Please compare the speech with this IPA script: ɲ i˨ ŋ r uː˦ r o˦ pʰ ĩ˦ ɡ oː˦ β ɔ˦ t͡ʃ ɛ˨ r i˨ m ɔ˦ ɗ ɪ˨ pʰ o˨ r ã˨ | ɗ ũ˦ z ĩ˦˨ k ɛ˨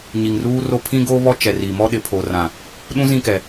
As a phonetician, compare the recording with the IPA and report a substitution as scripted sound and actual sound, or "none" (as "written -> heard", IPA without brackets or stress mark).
none